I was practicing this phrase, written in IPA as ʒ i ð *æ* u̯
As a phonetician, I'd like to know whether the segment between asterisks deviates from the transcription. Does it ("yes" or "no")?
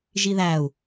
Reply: no